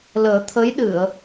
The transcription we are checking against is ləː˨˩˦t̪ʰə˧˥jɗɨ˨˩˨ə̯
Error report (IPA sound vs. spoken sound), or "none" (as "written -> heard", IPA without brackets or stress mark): none